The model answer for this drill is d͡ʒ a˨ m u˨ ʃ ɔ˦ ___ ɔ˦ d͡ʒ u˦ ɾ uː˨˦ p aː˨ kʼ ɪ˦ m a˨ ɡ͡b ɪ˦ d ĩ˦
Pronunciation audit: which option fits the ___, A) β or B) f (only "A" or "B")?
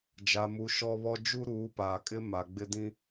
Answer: A